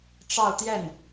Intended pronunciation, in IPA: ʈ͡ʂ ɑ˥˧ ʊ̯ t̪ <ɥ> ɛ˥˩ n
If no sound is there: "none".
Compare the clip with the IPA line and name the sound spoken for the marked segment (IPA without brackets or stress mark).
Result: j